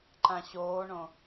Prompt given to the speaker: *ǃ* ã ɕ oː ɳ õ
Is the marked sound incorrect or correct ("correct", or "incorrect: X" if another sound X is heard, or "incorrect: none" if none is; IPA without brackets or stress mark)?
correct